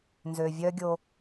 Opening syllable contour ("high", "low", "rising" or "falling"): low